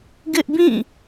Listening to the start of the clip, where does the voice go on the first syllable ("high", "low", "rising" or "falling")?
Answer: high